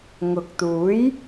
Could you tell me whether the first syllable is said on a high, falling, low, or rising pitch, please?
low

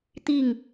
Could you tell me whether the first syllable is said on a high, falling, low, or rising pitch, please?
falling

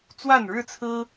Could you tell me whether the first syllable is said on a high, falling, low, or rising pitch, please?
falling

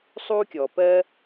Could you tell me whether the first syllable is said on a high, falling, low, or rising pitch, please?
high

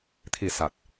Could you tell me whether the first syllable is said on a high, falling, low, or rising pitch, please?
low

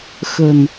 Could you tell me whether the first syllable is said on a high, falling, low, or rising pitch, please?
low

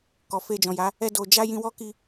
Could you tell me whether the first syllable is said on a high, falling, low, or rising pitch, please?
low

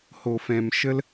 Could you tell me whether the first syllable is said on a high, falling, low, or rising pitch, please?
low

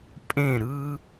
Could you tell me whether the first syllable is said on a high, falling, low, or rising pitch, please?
falling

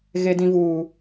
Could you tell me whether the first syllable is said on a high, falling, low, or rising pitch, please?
low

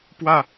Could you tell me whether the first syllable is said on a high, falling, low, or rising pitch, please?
falling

